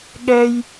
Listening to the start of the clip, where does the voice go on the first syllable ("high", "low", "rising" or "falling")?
high